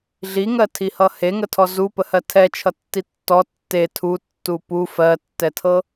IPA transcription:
ɮiŋɜtʰihʌ heŋətʰɔ zupəhɜ tʰɛt͡ʃʰʌtːi tːɔ tːe tʰutːu pu fɜtːɛtʰɤ

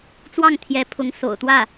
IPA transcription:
t͡swɑ˥˩ŋt̪ʰjɛ˧˥pʰʊ˧˥ŋ so̰˨˩ʊ̯t̪wä˥˩

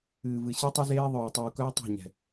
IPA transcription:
ɨː˨vɨ˨ ɕi˦tˤu˦ zeː˦ ðˤœː˨ tˤuː˨kœː˦tˤe̤˦˨ ɲɛ̤˨

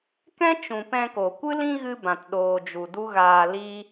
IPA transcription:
kɛ̃˦ t͡ʃũ˨ pɛ̃˧ko˨ kʷɨ˦lĩ˦ ɣɨ˦bã˨t ɗoː˨d͡ʒu˨ du˦ɣaː˧liː˦

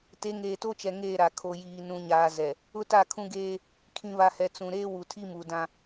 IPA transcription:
te˨˦ŋeː˨to˦t͡ʃɛ˨ ŋeː˦˨ɾa˨ kʰo˨jiː˨ nũ˨ɲaː˨ zɛ˨ | ʊ˦ta˦˨kʰũ˦ɡeː˦ | kʰĩ˨βa˨hɛ˨ t͡sũ˨ ɾeː˦wu˨tʰi˦mu˨ dã˦

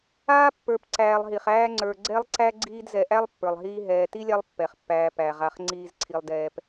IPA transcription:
aː˥pːə˞˨p ǀæː˨lˠɦi˩χæː˦ ŋ͡ǀə˞˨ ɡ͡ǀɛ˥lˠǀæ˥ ɡ͡ǀiː˦dzɛ˨ʔæ˥lˠ pːə˞˩lˠɦiː˦ɦɛː˨ ti˥lʲa˦lˠ pːɛ˩χpːæː˨ pæ˩ʁa˨χ ŋ͡ǀiː˨zǀʰi˩lˠdɛː˩p

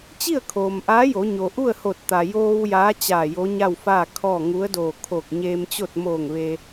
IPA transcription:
t͡ɕi˥˨ə̯kʰoː˩mʔaː˧˥ jo˩˧ɲo˩ʔu˥˨ə̯ho˧˩t̚ t̪a˩joː˧w jaː˧˥t͡ɕaː˧˩ jo˧˥ɲa˥˨wfaː˥˨kʰɔː˥˨ ŋu˧˥ə̯doː˧˩ kʰo˧˩k̚ɲeː˧mt͡ɕo˥˨t̚ moː˧˩ŋ ʋe˧

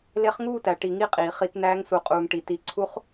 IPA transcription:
le˧˥χŋuː˥˨tæ˩ ʈi˧˩˧ŋi˥˨qʼiː˩ χi˧˩˧tnæː˧˥ŋ su˩qʼuː˩ŋ ʈi˩ti˩˥ǀʰu˧˥χ

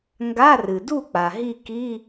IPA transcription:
ŋɡa˧˥˧rɨ˩du˥˨k͡pa˩ ɦi˥˨ki˧˥˧

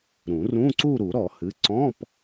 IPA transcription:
ɾũ˨˩˦rũ˧˥˧ǀu˥˧ ɾu˨˩˦ɾɔ˨˩˦hɨ˩˧˩ ǀɔ̃˧˥˧p

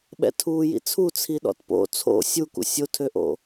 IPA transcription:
ɓɛ̰tʰuːjḭt͡sʰu t͡sʰiɗɔ̰tpo̰ t͡sʰo̰ sʲukṵ sʲotʰøʔo̰

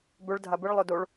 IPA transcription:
bɵɭ dʱabɨɭ lˠɵdoɭ

